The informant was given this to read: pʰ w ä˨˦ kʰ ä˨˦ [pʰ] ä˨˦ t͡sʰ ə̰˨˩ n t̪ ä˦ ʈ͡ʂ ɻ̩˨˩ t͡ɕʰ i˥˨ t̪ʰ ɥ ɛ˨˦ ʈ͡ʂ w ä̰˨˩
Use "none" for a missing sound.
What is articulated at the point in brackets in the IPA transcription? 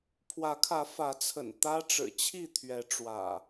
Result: f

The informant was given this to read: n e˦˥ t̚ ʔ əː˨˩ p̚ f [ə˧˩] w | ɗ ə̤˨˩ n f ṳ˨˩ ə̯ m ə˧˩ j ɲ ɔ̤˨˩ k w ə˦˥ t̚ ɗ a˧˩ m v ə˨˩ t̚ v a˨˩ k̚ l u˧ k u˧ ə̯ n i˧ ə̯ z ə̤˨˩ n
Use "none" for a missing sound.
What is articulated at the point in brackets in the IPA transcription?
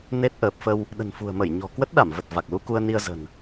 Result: ə˧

